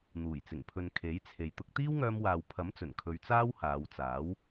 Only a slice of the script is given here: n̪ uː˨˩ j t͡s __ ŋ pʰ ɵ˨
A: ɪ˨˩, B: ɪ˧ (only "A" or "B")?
A